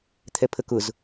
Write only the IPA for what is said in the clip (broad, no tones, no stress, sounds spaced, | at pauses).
t̪ʰ ɛ pʰ ə k ʊ z